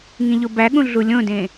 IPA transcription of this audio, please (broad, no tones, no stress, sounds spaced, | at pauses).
ŋ ĩ ʎ o b æ ɠ ũ ɮ u lʲ õ d ẽ